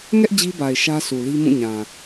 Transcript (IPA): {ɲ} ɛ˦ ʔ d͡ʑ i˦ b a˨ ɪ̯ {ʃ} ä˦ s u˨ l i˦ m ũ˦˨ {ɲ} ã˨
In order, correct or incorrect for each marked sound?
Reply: incorrect: ŋ, correct, correct

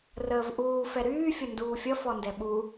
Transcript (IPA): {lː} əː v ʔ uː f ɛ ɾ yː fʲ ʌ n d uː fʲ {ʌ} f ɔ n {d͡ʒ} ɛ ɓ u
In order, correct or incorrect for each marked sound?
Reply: incorrect: r, correct, incorrect: d

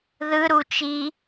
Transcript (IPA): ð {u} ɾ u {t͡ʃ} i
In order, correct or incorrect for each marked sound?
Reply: incorrect: ɯ, correct

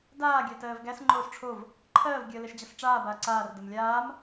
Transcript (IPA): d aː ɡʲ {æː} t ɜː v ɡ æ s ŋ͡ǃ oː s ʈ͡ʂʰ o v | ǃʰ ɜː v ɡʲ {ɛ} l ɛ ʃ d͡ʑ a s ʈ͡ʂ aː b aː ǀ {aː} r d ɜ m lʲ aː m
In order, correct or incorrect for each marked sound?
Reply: incorrect: æ, incorrect: ɜ, correct

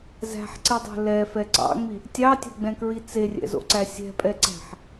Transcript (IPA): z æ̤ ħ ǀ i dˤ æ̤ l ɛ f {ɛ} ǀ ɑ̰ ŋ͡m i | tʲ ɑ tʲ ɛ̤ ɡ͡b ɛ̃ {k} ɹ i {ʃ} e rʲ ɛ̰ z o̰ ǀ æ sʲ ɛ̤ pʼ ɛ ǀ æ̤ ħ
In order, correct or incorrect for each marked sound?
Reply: correct, correct, incorrect: t͡s

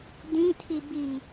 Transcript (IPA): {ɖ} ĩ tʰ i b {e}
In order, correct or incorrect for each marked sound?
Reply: incorrect: d, incorrect: i

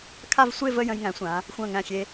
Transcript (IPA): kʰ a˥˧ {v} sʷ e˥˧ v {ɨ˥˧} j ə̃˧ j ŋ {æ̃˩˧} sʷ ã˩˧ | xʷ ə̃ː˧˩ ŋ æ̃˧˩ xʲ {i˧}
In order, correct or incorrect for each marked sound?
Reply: correct, incorrect: ə˥˧, correct, incorrect: e˧

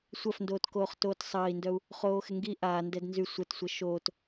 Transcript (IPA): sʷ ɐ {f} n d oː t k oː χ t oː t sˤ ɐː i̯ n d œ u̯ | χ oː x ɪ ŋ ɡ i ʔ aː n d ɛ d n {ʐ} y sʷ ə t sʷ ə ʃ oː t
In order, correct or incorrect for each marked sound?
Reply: correct, incorrect: z

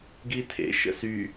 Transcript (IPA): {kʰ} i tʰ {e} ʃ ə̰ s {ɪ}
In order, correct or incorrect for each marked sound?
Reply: incorrect: ɡ, incorrect: ḛ, incorrect: y

